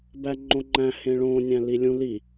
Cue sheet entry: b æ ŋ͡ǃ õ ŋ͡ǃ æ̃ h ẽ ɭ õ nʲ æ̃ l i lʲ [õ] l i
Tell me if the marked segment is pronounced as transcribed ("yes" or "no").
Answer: no